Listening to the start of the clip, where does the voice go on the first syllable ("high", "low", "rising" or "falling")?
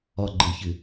falling